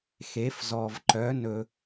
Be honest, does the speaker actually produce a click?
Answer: yes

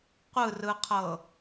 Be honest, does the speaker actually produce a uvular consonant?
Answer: yes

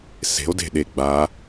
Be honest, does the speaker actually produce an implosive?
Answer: yes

